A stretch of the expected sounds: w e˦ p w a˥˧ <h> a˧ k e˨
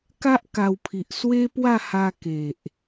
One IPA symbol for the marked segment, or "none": h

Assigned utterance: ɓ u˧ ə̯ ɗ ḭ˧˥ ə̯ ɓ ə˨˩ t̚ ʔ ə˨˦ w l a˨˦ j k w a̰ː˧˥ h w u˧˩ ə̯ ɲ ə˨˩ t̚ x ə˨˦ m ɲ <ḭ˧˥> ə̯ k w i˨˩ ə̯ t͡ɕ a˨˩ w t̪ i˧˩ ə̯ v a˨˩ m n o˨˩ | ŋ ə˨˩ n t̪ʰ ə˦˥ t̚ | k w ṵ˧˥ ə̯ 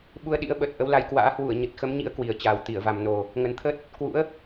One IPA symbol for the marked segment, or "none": ḭ˧˥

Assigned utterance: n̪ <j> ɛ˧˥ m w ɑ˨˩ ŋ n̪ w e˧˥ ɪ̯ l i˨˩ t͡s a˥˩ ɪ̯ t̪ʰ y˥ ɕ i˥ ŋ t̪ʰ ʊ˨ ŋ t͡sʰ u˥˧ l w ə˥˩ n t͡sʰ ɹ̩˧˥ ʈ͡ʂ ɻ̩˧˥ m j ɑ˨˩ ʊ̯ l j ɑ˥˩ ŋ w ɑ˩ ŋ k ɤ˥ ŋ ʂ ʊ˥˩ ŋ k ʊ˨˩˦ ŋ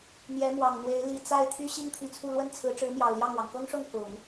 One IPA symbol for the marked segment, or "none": j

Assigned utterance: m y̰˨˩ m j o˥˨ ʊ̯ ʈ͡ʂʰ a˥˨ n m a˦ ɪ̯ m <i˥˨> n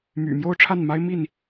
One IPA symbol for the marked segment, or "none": i˥˨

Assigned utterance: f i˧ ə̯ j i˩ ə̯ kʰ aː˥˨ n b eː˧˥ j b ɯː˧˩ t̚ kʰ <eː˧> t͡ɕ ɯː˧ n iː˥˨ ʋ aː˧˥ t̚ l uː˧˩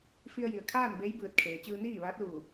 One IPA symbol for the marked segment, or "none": eː˩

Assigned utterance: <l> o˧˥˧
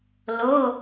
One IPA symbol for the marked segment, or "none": l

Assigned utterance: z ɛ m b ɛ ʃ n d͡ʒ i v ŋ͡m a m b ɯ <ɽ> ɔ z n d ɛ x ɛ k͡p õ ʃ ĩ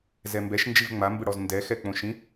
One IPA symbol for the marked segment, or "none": ɽ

